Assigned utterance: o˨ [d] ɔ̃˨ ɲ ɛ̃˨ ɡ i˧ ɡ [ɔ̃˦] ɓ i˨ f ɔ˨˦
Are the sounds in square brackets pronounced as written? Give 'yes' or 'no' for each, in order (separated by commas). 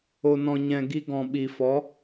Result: no, no